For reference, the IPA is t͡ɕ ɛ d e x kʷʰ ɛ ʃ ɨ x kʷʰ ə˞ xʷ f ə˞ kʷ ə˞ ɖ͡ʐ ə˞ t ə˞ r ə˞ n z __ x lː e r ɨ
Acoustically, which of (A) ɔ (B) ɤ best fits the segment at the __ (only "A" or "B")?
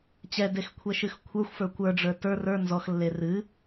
A